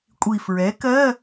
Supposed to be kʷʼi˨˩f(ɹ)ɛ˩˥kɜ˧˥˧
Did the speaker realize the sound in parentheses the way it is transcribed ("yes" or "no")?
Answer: yes